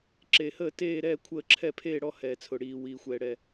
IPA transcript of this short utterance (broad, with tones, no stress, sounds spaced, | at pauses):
ǁ e˨ h əː˥˧ t eː˥˧ ɾ ɛː˥˧ kʷʰ əː˥˧ ǁʰ ɛ˥˧ pʰ eː˥˧ ɽ ɔ˥˧ h ɛː˨ t͡sʰ ʊ˨ ɽ iː˨ w iː˨ xʷ ɛː˨ ɽ ɛ˨